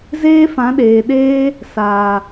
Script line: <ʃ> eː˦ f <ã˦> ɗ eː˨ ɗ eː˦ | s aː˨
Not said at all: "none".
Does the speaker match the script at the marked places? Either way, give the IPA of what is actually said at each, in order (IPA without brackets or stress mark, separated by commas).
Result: z, ã˨˦